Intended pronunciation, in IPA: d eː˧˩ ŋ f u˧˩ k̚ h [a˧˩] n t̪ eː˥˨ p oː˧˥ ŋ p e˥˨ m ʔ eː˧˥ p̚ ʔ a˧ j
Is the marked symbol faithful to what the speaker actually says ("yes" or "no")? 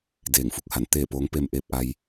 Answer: yes